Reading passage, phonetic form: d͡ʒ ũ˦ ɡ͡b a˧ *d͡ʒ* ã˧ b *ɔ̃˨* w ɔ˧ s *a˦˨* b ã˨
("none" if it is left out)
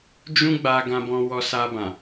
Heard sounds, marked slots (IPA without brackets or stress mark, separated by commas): ɡ, ɔ̃˧, a˧